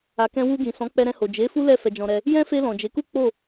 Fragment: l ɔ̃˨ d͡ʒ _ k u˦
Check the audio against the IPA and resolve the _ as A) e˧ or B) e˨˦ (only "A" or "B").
B